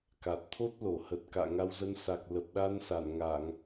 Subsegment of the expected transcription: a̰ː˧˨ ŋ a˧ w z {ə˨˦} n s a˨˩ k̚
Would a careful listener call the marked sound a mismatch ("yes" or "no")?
yes